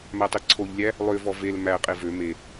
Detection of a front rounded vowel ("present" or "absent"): present